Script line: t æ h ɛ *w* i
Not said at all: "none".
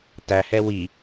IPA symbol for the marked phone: w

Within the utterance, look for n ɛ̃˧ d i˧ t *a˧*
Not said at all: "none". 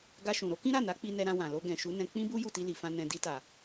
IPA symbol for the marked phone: a˨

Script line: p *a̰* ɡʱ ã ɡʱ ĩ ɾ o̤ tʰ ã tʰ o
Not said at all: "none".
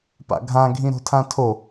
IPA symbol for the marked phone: a̰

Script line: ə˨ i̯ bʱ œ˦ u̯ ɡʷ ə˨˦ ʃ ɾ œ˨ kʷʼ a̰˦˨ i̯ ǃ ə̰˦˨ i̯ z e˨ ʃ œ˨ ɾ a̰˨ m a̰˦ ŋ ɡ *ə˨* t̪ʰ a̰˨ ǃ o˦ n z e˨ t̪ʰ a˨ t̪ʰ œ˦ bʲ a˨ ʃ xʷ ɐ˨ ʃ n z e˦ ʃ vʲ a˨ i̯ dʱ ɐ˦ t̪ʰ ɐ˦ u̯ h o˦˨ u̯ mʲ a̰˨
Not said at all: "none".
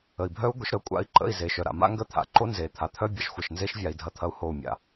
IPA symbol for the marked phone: ə˦˨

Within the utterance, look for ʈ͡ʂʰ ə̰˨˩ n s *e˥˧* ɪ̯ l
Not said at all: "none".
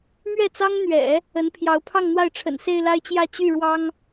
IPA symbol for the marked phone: e˥˧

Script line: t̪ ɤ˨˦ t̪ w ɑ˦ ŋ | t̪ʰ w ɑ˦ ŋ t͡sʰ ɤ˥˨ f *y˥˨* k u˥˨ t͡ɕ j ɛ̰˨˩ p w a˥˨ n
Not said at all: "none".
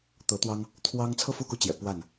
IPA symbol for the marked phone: u˥˨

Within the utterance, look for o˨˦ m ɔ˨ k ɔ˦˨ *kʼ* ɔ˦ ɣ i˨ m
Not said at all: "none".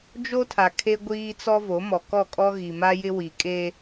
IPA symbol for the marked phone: kʼ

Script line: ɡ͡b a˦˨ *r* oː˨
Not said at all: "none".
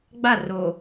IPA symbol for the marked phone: r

